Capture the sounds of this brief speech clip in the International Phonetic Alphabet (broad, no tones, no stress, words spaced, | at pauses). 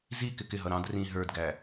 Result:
zi kɪkɪɦʌ ɾɑ̃d rĩ ɦə˞dɡæ